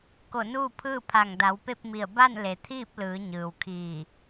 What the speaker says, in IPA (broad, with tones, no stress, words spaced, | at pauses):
ko˧˩nuː˥˨pʰɯː˥˨pʰa˧˩ŋ da˩˧wpe˥˨p̚mi˧˩ə̯ ba˥˨nle˩t̪ʰiː˥˨p̚ lɯː˩˧ ɲɯː˩w kʰiː˧˩